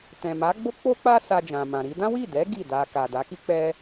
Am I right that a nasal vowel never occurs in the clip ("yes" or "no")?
no